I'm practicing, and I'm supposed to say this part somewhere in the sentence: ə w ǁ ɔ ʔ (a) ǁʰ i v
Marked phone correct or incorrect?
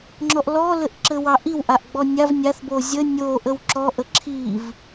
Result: incorrect: ə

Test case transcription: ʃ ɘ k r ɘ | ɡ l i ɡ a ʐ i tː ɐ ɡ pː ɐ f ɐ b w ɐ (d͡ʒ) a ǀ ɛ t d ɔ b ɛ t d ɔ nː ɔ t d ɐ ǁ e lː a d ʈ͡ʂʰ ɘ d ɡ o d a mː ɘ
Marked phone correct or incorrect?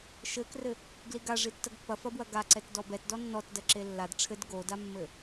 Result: incorrect: ɡ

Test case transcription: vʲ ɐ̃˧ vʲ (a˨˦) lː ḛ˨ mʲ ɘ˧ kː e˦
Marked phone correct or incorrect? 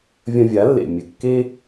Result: correct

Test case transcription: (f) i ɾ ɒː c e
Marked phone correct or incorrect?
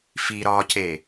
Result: correct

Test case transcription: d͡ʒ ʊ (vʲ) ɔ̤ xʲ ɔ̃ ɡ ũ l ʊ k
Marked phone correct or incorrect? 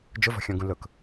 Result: incorrect: v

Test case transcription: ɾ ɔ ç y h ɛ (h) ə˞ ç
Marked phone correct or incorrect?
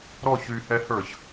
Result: correct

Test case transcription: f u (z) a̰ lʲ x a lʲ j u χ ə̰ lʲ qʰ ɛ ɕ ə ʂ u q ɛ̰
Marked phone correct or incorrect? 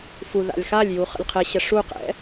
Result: incorrect: ð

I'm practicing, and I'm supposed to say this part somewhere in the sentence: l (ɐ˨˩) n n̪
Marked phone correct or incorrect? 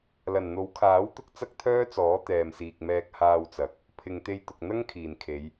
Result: correct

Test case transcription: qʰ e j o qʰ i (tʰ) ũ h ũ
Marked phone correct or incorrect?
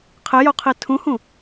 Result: correct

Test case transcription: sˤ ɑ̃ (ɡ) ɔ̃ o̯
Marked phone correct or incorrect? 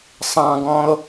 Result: correct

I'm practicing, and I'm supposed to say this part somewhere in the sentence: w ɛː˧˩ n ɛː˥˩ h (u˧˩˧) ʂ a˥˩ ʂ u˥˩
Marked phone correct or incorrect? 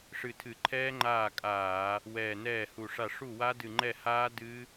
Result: incorrect: u˧˩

